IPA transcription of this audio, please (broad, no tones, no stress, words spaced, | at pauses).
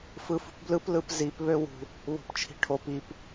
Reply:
fɯfṳpblɯp lɯpzip βøwṳ | βo̤pt͡ʃʰi̤ʈʰop ip